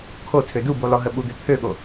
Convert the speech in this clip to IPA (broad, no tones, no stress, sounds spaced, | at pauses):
kʰ o tʰ ø d u b u lˠ o ɦ ə ɓ u d̪ ø pʰ ø ɠ o